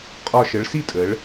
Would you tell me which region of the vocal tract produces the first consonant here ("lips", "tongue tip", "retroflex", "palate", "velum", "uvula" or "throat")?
uvula